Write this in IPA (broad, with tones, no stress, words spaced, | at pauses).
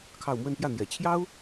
kʰɑ˥˧ʊ̯ mwə˥˧npjä˥˩n̪jɛ˨˩ t͡ɕʰjɑ˥ʊ̯